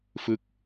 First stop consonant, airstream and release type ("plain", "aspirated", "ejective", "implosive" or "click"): plain